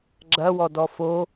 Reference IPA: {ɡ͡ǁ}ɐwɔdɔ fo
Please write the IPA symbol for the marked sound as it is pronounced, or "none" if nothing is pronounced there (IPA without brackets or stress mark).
ɡ͡ǁ